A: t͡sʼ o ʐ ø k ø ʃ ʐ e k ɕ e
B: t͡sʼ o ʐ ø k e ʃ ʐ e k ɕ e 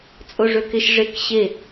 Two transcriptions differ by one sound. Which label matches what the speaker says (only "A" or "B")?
B